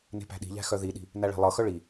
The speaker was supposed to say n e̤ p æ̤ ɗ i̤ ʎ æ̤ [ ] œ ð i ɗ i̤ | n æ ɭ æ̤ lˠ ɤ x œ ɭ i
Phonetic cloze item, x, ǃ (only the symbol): x